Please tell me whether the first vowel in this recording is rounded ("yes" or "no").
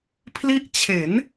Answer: no